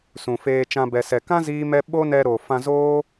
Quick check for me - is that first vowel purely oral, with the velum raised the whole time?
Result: no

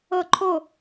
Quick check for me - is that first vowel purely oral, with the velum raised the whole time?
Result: yes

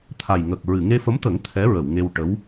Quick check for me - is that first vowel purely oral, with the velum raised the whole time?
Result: yes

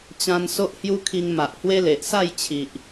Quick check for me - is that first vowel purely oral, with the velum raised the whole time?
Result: no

